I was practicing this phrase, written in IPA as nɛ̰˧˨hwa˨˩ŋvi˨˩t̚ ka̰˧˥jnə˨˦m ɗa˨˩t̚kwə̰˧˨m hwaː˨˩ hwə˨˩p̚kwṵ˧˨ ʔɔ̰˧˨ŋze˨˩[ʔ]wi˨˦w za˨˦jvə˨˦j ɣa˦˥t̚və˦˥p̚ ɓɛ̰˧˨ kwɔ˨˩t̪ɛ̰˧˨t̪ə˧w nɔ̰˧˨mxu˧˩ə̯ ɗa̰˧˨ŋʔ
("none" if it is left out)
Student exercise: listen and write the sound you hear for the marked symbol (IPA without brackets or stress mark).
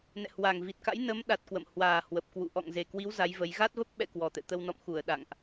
k